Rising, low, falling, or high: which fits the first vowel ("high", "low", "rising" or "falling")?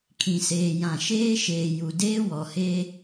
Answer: low